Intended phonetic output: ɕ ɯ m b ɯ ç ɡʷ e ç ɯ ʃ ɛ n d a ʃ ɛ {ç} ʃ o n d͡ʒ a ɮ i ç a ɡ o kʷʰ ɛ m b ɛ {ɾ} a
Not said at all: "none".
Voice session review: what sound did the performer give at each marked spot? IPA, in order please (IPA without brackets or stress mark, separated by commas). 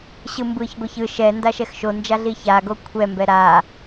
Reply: x, ɾ